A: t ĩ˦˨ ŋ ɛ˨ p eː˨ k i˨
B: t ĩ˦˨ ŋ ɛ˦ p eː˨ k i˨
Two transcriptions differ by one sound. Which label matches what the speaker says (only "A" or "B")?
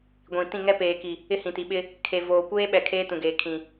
B